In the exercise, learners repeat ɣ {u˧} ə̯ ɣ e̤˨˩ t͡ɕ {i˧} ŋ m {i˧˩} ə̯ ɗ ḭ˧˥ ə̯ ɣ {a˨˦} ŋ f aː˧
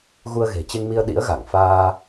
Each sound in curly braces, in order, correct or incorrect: correct, incorrect: e˧, incorrect: i˧, incorrect: a˧˩

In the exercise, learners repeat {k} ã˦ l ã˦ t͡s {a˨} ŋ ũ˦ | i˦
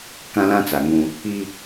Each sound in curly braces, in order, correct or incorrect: correct, correct

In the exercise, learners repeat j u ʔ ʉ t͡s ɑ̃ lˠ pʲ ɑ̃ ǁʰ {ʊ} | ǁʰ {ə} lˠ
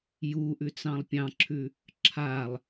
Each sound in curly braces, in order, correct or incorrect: incorrect: ʉ, incorrect: a

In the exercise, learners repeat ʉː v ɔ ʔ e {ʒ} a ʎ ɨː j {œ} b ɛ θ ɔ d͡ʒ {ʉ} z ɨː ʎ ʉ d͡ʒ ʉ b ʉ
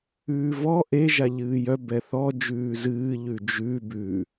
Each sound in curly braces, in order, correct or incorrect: correct, correct, incorrect: ʉː

